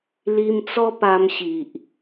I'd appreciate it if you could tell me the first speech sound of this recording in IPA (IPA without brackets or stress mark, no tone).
l